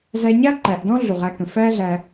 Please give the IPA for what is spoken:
z æ˧ ɲ a˦ ǃ æ˨ ʔ d ɔ̃˦ ɮ u˨ ʁ æ˧ k ə̃˨ f æː˦ ɮ æ˧

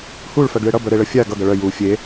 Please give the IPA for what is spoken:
h u ɭ f œ ɡ ɭ e ɽ ʌ b œ ɾ e ɭ ə fʲ a ɡ ʌ ɡ ʌ ɭ œ j u fʲ e

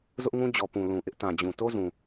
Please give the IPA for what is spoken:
z ʊ˦ ʔ ŋ ũ˦ d͡ʑ ɔ˨ p ũ˨ l ũ˨ ʔ ɪ˦ ʔ t ã˨ d͡ʑ ũ˨ t o˦ z ũ˨

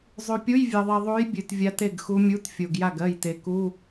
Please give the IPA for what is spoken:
zˤ ʉ˨ pʲ u˧˥˧ j vʲ ɜ˨ ðˤ i˨ ðˤ u˧˥ j bʲ ʉ˨ t vʲ a˧˥ t e˥˩ ɡ x u˧˥ mʲ u˧˥˧ t fʲ o˨ ɡ j a˥˩ ɡ ɜ˥˩ j t e˨ k u˧˥˧

